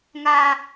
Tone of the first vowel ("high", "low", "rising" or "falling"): high